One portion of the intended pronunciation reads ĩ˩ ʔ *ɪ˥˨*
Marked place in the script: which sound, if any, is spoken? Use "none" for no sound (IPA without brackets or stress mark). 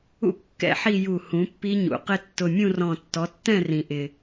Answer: ɪ˩